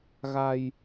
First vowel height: low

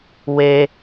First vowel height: mid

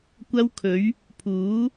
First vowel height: low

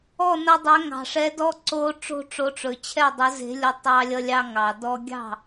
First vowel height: mid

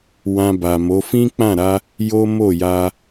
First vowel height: low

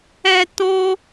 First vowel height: mid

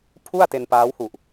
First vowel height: high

